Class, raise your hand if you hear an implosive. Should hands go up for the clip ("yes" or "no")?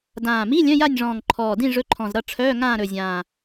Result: no